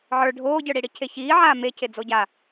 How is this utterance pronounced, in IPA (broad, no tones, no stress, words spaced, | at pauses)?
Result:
ʕə˞ ɖʱoːɟə˞ɽiɽi cʰeçiːʕaː mecʰe d͡zoɟa